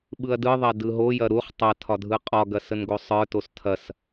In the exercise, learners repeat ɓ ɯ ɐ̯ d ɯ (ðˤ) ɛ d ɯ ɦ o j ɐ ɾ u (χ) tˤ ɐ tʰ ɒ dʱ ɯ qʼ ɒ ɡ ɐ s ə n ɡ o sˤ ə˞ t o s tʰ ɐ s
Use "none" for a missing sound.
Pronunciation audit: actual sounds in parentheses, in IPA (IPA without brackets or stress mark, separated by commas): ðˤ, χ